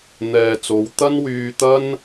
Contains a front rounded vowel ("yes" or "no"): yes